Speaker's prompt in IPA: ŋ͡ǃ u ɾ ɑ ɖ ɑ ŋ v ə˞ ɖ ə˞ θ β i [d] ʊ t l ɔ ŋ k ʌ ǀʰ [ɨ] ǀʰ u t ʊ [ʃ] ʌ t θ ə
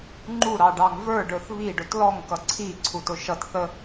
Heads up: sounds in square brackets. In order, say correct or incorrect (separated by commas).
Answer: incorrect, incorrect, correct